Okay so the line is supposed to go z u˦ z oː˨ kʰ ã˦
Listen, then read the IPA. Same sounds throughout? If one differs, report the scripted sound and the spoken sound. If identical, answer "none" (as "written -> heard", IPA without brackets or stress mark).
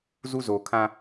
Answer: none